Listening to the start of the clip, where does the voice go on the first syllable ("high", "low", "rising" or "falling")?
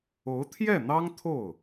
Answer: rising